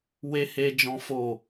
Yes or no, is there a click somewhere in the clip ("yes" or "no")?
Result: no